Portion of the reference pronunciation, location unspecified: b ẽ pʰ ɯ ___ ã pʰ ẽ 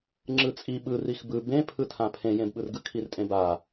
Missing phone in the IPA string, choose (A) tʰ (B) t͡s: A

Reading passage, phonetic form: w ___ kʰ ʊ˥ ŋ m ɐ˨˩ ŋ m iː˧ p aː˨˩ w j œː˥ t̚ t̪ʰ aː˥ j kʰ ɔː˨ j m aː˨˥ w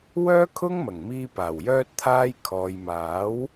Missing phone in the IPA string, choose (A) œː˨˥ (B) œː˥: B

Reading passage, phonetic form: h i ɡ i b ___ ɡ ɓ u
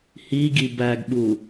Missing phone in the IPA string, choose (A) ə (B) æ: B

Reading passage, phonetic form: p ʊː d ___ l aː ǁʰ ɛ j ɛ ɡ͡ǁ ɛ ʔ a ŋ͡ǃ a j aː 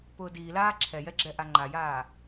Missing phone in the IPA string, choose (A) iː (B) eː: A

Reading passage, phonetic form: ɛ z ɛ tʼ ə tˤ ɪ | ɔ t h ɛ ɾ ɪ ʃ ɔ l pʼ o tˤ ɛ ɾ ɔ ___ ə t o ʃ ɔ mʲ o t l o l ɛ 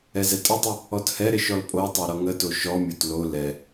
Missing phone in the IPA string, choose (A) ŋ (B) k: A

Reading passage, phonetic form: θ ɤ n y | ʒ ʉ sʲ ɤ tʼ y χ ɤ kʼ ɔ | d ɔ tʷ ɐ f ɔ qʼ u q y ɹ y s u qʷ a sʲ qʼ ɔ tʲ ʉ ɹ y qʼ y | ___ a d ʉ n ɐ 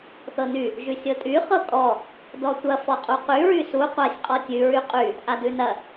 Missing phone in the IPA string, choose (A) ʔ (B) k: A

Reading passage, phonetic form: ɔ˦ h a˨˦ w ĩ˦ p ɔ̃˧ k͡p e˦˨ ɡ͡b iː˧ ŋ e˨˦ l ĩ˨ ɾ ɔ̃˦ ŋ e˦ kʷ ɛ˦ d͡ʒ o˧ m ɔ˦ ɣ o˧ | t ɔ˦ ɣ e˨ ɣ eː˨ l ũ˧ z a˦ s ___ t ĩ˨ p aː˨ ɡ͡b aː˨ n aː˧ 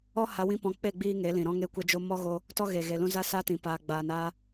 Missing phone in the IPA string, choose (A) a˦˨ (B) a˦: B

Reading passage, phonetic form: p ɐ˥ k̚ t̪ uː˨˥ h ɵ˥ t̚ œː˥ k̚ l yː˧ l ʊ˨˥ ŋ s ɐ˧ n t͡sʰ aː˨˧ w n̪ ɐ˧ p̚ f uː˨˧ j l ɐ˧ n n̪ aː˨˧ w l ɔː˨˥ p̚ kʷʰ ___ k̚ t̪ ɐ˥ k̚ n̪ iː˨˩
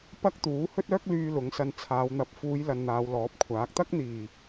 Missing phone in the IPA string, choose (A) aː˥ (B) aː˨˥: B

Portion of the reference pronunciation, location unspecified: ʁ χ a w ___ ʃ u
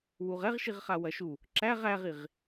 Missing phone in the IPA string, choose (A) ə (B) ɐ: B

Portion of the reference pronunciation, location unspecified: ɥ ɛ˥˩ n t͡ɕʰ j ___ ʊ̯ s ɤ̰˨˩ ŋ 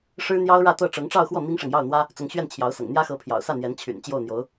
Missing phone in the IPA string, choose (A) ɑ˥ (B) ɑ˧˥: B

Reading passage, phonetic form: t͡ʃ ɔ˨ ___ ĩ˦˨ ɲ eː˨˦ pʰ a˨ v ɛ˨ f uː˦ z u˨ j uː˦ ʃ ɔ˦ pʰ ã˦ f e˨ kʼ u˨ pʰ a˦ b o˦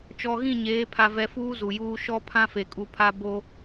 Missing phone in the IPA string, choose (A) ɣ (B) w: A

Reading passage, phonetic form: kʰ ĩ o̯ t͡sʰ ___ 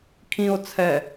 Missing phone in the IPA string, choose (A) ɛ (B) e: A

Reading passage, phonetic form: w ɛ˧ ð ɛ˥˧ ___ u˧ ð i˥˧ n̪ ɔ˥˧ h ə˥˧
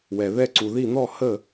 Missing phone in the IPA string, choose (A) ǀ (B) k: A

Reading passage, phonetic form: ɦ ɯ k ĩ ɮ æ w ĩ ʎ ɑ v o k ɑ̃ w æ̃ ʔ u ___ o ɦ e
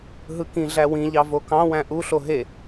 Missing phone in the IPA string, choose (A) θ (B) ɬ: B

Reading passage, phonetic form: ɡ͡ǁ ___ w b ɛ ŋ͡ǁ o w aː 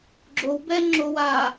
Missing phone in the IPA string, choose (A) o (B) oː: A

